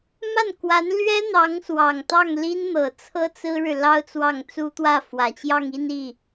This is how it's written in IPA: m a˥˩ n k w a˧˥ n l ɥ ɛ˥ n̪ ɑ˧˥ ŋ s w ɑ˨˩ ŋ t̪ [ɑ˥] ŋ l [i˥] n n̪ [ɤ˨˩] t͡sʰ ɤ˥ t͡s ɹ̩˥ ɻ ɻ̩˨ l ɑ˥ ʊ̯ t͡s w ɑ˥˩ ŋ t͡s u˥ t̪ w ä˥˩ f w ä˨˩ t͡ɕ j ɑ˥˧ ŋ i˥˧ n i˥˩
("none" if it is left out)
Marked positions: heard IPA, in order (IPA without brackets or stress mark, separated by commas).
ɑ˥˩, i˥, ɤ˨˩